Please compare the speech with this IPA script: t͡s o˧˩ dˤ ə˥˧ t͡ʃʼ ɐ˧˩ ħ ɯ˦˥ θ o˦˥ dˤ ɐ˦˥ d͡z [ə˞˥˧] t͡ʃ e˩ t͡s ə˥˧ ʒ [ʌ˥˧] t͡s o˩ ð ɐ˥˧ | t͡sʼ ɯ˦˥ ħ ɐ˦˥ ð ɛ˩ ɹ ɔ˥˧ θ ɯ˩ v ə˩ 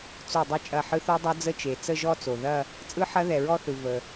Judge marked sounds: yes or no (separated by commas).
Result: no, no